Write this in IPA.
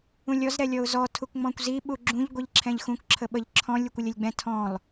ũ lʲ ɔ z ɾ ɛ lʲ ɔ ʊ̯ z ɔ tʰ u k ŋ͡m ɔ̃ kʷ z i ɓ u ɡ͡ǁ ũ ʎ ɡʷ i ʎ ǁʰ ɛ̃ ʎ x ũ k ǁʰ ə ɓ ə ʎ ǁʰ ɔ̃ lʲ u kʷ ə lʲ ə lʲ ɡ͡b ɛ̃ tʰ ɔ̃ lˠ

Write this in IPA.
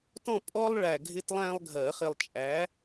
t ɔ̃˥˨ pʼ ɔ˥ lˠ ɭ æ˨ ɡʱ ɪ˥ t lˠ æ̃˥ lˠ ɡʱ ɜ˨˩˦ χ ɪ˨ lˠ t͡ʃʼ æ˩˥

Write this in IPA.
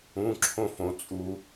ũ˧˥˧ ǁʰ õ˥˧ f õ˨ t͡sʼ u˨

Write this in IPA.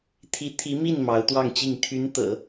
t̪ʰ i˧˥ t̪ʰ i˧˥ m i˥˩ n m ɑ˧˥ ʊ̯ t̪ w ɑ˥˧ ŋ t͡ɕ i˥˩ ŋ t̪ʰ y˧˥ n t̪ ɤ̰˨˩˦

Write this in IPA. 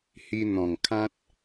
h i˧ n̪ ɔ̃˨˩ ŋ kʰ ã˦ t̚

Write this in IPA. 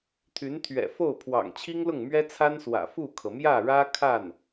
t̪ʰ y˧˥ n t̪ʰ ɥ ɛ̰˨˩ f o˥˩ ʊ̯ pʰ w ɑ̰˨˩ ŋ t͡ɕʰ i˥ ŋ l ʊ˥˩ ŋ m ɥ ɛ˥ t͡sʰ a˥ n s w ä̰˨˩ f u˥˩ kʰ ɤ˩ m j ä˥˩ ɻ ä˥ kʰ a˥˩ n

